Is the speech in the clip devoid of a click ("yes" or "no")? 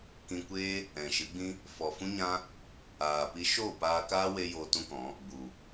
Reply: yes